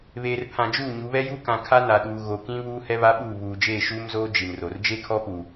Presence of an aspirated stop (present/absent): present